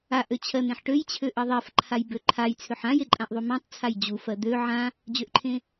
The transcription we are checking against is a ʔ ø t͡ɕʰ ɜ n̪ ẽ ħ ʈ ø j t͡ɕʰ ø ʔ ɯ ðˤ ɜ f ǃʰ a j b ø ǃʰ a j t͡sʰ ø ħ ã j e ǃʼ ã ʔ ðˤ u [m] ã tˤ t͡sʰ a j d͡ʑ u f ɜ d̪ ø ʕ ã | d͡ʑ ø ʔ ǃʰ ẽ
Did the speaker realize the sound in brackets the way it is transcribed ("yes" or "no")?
yes